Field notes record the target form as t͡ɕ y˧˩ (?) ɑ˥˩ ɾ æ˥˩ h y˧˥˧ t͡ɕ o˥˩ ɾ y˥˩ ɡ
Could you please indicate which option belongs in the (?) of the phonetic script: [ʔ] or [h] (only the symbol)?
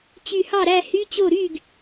h